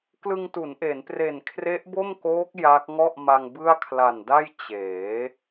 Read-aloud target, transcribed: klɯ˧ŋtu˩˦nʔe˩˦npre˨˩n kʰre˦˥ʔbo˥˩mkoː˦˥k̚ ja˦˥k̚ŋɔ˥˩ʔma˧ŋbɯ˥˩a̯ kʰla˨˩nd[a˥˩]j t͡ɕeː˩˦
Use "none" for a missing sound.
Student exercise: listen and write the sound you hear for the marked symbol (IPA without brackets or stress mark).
a˥˩